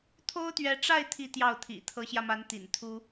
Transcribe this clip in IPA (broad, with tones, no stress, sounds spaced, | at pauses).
t̪ʰ o˥ ʊ̯ t̪ ɥ ɛ˧˥ ʈ͡ʂ a˥˧ ɪ̯ t̪ʰ i˥˧ t̪ j ɑ˥˩ ʊ̯ t̪ʰ ḭ˨˩ t̪ʰ ɤ˧˥ ɕ j ä˧ m a˧˥ n t̪ ḭ˨˩ n t̪ʰ u˥